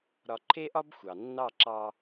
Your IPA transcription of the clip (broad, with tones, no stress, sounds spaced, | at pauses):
ɾ ɒ˧ ǃʰ e˦ ʔ ɒ˦ b xʷ ɑ˨ nː ɑ˦˨ ǁ ɑ˧